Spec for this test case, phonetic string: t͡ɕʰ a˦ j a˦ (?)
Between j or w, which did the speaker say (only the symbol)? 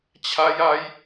j